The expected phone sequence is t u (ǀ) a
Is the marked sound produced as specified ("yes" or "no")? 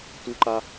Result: no